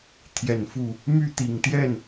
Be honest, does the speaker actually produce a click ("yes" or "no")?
no